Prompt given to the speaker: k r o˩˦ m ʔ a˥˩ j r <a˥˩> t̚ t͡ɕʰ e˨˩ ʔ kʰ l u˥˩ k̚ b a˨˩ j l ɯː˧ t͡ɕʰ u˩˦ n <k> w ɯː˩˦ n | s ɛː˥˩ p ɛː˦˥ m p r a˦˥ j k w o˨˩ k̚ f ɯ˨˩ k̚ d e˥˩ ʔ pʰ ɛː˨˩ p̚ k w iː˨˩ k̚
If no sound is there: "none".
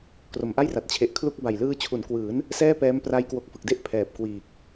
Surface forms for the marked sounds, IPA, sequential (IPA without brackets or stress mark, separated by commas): a˨˩, k